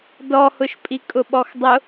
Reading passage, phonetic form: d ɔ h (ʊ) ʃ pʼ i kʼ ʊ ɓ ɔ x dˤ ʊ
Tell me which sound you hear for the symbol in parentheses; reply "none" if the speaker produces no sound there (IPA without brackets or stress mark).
ʊ